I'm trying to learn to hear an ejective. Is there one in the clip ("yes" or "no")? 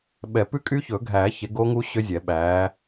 yes